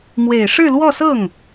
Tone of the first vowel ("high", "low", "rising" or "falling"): low